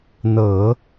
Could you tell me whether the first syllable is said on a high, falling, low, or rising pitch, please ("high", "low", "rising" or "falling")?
low